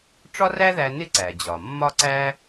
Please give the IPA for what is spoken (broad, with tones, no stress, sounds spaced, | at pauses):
ʈ͡ʂ ɒ˥ r æ˥ ð æ˧ n ɪ˥ ǀ æ˩ d͡ʑ ɒ˩ mː ɒ˥ ǀ æ˥